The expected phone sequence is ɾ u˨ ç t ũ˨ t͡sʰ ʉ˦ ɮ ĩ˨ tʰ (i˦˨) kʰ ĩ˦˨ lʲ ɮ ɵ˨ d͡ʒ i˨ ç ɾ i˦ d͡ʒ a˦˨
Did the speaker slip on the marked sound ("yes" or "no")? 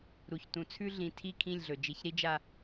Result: no